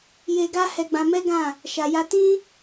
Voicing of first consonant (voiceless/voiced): voiced